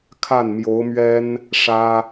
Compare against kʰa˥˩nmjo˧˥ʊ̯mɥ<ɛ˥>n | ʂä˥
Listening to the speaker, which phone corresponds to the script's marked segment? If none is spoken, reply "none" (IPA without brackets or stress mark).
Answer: ɛ˥